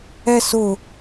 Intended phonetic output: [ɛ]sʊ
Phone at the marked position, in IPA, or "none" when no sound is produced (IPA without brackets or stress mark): ɛ